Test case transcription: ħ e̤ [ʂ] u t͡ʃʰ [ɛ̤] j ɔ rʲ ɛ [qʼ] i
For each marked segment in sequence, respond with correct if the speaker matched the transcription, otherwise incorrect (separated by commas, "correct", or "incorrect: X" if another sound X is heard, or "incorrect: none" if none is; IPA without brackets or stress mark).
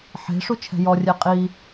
correct, correct, correct